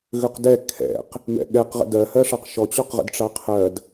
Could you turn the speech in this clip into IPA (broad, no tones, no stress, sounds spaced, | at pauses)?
ɣ ø q d ɛ kʰ ɛ̰ q | m ɛ̰ ɠ ɛ q ʁ ə̰ d ɜ h ɜ ʂ ɑ q ʃ ɔ t͡ɕ ɔ q ʁ ə̰ d ʈ͡ʂ ɑ qʰ ɜ d